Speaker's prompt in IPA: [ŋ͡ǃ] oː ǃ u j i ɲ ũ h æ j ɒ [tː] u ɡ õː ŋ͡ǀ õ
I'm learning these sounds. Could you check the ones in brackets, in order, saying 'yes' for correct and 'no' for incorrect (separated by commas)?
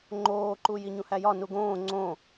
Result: yes, no